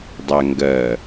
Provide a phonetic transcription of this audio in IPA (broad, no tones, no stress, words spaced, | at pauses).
dˤæŋɡɜ